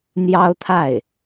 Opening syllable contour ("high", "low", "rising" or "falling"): high